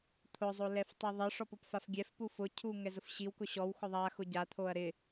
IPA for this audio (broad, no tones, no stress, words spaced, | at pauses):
t̪ʰʊzˤo lɛftˤiðˤɪʂɔp ʊpfafɡʲɛfpu fʊcʰu ŋɛzʊfɕiwkʊ ɕɔwxʊ ðˤaxʊ ɟat̪ʰoɐ̯ ɾɪ